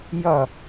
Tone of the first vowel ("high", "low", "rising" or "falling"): falling